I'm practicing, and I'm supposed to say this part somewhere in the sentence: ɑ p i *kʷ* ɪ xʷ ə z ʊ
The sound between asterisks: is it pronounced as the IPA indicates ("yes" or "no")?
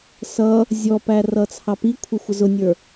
no